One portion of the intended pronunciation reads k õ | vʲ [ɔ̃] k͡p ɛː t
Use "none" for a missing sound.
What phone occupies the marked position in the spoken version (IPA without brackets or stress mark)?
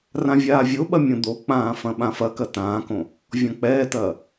ɔ̃